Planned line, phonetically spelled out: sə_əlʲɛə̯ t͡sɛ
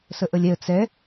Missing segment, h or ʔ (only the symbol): ʔ